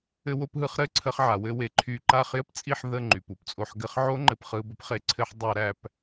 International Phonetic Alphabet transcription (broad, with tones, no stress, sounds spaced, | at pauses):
ɘ˧ w o˧ p ɦ ɯ˧ χ ɾ ɘ˦˨ ǀʰ ə˧ χ ʕ a˨ w ɘ˧ w e˨ ǃʰ y˧ ǃ a˦˨ χ j ɘ˦ p t͡sʼ i˦˨ ħ ð ə˦˨ ŋ͡ǃ y˨ p u˧ p t͡sʼ o˧ ħ ɡ ɘ˦ χ ʕ o˦ ŋ͡ǃ ɘ˧ p χ ɯ˧ b ə˦ p χ e˧ ǀʰ ɘ˦ ħ dˤ æ˧ ɾ æ˧ p